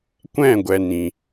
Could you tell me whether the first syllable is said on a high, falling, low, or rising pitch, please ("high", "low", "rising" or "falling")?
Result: falling